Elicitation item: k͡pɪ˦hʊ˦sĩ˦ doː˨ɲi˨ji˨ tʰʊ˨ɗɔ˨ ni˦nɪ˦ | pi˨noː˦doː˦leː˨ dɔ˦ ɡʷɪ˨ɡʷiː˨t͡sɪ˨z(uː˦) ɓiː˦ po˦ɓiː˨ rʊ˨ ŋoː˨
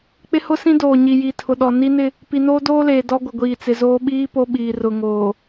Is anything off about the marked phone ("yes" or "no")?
yes